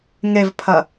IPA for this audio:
ŋevpʰɐ

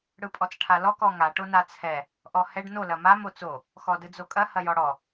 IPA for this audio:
ɽɯpʼɔt͡sʈʰalɔ kɔŋa ʈonat͡sʰɛ | ʔɔhɛɖ no lɐmam ot͡so | xɔdɯd͡zokʼɐ hɐjɔɽɔ

